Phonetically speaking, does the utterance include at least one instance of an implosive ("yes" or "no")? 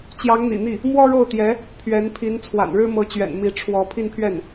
no